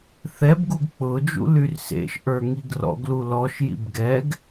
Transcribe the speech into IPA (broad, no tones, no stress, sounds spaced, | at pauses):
θ ɛ b ɡ u ɡ k͡p ʊ d͡ʒ ṵ l y r s ḛ ʃ ʔ ə˞ ŋ i ɡ r ɔ̰ ɡ l u l ɔ ʃ j ḭ b ɡ ɛ ɡ